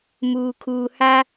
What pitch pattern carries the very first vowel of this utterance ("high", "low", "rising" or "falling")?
low